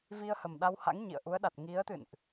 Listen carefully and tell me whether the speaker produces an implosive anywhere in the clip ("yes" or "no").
yes